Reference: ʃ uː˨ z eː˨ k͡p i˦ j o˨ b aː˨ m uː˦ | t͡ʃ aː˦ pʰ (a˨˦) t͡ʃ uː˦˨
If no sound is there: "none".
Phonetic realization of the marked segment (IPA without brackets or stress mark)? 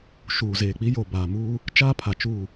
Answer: a˨